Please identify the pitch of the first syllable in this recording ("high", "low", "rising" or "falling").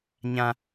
high